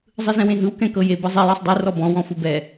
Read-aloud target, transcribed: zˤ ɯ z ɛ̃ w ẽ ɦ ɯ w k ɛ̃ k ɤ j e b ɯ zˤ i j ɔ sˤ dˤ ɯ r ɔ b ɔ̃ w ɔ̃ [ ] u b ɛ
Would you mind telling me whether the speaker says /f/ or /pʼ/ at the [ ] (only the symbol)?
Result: f